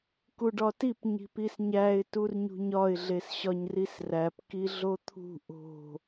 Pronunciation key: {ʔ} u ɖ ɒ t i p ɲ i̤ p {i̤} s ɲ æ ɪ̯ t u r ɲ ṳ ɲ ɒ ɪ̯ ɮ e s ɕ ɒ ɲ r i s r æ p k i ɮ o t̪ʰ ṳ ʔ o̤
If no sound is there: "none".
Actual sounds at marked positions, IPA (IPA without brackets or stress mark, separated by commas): k, i